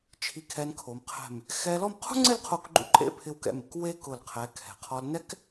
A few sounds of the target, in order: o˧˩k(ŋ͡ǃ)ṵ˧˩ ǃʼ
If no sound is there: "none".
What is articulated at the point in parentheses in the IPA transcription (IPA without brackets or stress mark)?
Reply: ɡ͡ǃ